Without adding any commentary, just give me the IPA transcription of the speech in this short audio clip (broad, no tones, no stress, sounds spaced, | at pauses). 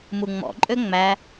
m u ŋ͡m ɔ̰ ǃʼ ø ŋ͡m æ